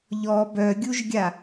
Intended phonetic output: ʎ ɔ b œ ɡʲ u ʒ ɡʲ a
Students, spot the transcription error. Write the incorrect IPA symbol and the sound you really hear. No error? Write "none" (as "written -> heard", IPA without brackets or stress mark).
none